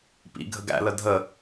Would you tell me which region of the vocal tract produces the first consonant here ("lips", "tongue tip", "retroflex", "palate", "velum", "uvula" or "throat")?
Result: lips